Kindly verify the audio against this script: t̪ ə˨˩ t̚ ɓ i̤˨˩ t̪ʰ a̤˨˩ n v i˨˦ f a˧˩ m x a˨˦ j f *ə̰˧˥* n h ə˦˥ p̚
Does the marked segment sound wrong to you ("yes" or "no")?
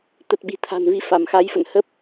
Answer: yes